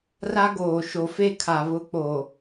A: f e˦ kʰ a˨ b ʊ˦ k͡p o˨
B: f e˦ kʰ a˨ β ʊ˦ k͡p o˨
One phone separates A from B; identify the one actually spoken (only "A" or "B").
B